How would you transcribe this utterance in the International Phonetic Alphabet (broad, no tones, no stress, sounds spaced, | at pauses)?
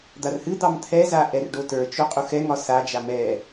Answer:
d̪ a r h ɨ d̪ ɑ m t̪ʰ ɛ z a ʔ ɛ r ɖ o t ə˞ t͡ʃ o qʼ u x ɛ ŋ ɒ s a d͡ʒ a m ɛ